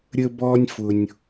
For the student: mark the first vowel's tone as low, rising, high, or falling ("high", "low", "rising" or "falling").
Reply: high